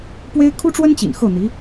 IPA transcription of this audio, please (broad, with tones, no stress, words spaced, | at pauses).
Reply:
pwe˥ɪ̯ kʰu˥ʈ͡ʂwə˥nt͡ɕḭ˨˩n xɤ˥˩n̪i˧˥